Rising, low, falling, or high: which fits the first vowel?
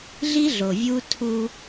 high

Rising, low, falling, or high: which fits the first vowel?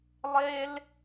high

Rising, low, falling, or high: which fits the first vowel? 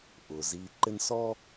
low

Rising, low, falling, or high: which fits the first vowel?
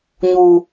high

